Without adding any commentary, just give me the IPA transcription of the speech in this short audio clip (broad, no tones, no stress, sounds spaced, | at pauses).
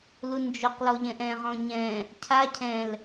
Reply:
l u n d͡ʒ o q l ɔ ʎ ɛ̃ ʔ ɛ̃ ʁ ɔ̃ ɲ ɛ̃ | cʰ a cʰ ɛ̃ l